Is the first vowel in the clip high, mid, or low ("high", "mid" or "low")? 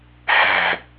low